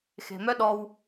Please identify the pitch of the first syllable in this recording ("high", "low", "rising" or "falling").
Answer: low